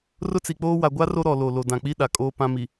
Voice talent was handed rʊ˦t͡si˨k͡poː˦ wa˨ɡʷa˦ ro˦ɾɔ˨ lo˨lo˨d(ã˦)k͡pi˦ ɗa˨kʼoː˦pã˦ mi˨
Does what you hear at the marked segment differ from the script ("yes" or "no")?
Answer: yes